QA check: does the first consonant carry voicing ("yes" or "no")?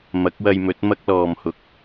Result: yes